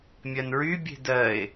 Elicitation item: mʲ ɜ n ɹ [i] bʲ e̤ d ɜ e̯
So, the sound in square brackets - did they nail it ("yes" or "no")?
no